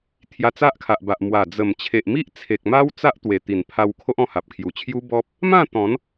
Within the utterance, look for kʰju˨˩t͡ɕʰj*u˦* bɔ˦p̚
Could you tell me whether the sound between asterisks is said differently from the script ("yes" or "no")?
no